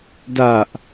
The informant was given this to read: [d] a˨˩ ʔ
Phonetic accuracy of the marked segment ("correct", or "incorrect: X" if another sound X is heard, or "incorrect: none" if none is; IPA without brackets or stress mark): correct